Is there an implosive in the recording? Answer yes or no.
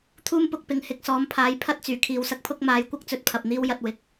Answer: no